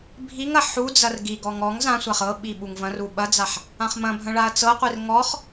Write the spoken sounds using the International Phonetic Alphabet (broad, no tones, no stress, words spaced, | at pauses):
bʱiŋɐ ħud͡zɐr ɡiɡɔŋ ɔŋ zãsʷaχ ɤɓi ɓuŋvɐ̃ru ɓɐd͡zaħ | ãχmɐ̃bʱɐ̃ ɭaɐ̯t͡sɤqʷir ŋɔχ